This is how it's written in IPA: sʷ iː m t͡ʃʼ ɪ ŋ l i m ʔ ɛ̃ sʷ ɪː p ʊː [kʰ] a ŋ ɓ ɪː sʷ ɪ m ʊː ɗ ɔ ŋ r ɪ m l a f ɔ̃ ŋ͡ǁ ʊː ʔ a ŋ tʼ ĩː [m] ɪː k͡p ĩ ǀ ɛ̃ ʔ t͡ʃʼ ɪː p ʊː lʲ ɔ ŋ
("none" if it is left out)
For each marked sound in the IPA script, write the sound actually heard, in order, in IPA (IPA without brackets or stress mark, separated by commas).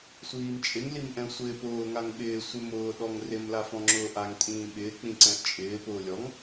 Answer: ŋ, ɓ